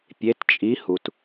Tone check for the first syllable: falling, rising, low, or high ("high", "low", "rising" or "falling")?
rising